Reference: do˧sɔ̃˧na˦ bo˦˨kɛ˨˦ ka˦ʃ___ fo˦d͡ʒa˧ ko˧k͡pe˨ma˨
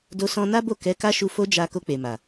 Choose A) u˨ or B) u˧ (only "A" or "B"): B